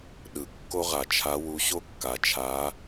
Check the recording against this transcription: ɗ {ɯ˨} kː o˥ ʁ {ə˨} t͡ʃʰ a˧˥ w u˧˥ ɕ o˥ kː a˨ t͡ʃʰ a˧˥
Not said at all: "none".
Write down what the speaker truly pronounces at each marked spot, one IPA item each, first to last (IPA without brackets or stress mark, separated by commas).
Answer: ɯ˨, a˨